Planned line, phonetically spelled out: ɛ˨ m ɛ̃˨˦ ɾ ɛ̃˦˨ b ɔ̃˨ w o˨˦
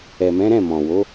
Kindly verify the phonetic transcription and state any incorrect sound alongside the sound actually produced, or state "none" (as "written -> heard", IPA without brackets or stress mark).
b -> m